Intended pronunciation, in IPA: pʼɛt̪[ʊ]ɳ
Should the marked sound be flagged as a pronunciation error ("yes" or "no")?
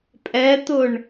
no